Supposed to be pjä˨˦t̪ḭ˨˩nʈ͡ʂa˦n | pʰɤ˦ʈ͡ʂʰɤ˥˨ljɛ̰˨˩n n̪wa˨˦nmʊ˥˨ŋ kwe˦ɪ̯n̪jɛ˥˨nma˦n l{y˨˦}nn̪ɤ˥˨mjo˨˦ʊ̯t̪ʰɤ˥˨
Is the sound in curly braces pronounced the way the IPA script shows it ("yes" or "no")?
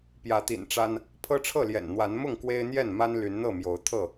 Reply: yes